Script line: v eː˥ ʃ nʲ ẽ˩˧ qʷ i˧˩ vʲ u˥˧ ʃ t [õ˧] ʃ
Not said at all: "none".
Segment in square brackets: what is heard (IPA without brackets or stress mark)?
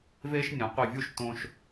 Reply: õ˧